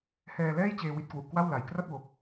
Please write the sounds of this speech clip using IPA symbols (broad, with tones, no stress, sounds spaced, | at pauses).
h ɛː˧ l ɛː˥˩ j t͡ɕ eː˧ w i˦˥ t̚ k w u˨˩ ʔ k w a˥˩ w l a˨˩ j k r a˥˩ t̚ w o˨˩ k̚